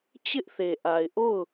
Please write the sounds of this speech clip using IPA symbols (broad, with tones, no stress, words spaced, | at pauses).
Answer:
t͡ɕɪ˦ʔθe˨ʔa˨ɪ̯ʔo˦˨ʊ̯